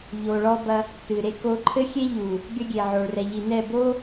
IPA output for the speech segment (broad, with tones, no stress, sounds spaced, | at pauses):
ʎ o˨ ɭ ɔ˦ b ɐ˦ | t ɨ˨ ɾ e˦ k o˦ ǃʰ ɘ˦ xʲ e˦ ʎ u˨ | ɡʲ ɐ˦ ɡʲ e˨ ʕ o˨ ɭ r ɛ˨ ʎ i˨ n ɛ˦˨ b o˦